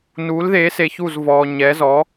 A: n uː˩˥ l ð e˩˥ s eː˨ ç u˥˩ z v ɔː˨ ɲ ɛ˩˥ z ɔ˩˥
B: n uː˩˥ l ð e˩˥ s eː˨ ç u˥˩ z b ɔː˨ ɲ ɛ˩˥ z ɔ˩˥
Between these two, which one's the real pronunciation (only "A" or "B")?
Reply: A